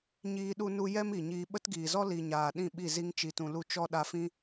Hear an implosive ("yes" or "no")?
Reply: yes